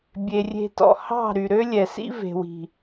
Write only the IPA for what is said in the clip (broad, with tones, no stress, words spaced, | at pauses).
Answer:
bʲe˨rʲe̤˧tɔ̰˨ hɑ̤˦˨ ɾy˨ɾø˦lʲɛ˨sḭ˦ ve̤˨wi̤˨